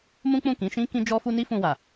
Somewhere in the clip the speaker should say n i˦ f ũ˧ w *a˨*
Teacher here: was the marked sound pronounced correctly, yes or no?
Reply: yes